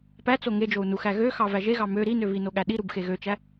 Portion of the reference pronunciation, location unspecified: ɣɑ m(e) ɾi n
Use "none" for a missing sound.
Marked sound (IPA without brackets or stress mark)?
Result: ø